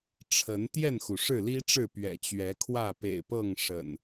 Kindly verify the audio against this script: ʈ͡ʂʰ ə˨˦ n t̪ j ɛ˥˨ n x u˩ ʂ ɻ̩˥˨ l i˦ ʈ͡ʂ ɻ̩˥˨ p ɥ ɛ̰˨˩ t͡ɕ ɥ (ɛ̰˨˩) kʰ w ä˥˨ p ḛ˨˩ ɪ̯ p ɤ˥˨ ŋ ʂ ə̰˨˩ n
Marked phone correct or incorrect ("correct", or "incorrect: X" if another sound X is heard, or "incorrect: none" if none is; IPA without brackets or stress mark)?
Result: incorrect: ɛ˨˦